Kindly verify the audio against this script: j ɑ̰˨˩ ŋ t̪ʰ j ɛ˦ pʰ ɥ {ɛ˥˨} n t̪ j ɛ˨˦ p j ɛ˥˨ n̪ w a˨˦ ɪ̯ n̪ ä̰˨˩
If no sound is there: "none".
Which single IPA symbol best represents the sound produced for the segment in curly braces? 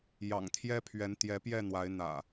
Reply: ɛ˨˦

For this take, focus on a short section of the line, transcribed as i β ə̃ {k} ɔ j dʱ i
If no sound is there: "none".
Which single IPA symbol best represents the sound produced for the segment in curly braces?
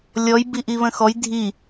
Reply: x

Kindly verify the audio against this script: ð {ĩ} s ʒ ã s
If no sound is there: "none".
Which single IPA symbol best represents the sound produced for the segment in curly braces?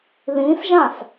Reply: ĩ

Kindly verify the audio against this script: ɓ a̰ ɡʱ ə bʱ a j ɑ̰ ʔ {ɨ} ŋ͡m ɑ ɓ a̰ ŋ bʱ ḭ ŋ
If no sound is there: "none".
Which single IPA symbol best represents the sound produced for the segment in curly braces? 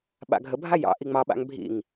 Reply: i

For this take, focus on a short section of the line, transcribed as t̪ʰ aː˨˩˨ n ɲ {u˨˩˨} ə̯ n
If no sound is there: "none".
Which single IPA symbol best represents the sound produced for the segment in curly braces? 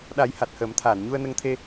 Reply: u˧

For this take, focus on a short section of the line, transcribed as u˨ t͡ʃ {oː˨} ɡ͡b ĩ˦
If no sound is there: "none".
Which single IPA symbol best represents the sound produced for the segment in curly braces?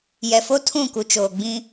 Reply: oː˨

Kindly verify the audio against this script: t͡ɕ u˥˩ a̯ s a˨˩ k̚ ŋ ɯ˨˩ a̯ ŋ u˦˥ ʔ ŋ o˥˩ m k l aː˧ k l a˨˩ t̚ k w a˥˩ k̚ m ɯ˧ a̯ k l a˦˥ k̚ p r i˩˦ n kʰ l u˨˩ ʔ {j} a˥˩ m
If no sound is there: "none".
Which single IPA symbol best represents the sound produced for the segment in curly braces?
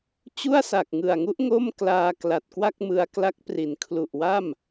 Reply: w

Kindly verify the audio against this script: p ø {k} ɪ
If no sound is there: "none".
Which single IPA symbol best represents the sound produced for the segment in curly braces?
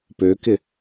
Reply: k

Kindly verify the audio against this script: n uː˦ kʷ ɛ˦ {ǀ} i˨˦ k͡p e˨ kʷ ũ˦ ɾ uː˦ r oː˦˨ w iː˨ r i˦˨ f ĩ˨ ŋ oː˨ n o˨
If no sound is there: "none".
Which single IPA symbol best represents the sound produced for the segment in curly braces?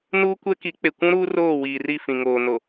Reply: k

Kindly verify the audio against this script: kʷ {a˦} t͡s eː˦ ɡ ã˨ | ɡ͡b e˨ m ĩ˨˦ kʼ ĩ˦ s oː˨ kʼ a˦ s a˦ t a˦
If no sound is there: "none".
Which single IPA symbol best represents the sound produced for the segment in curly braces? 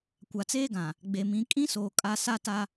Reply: a˨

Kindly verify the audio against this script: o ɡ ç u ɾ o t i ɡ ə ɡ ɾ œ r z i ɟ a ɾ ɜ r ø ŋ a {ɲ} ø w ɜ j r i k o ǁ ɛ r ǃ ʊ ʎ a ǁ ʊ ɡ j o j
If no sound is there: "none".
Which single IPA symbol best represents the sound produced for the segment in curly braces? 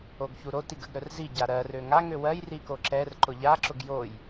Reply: ŋ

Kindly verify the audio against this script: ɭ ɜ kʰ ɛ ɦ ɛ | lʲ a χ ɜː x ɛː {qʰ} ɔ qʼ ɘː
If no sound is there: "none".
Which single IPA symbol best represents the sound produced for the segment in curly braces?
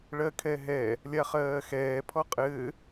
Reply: pʰ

